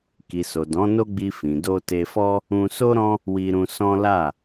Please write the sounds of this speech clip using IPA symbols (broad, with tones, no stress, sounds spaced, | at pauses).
k i˨ s o˨ d ɔ̃˨˦ n o˦ ɡ͡b i˧ f ĩ˨ d o˧ t e˧ f ɔ˦ | ũ˧ s o˦ ɾ ɔ̃˦ | w i˧ ɾ ũ˧ s ɔ̃˦ l a˦˨